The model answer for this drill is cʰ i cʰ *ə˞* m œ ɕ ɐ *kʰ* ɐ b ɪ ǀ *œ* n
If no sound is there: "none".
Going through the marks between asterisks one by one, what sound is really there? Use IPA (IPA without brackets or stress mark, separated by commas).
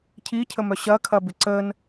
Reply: ə, kʰ, ə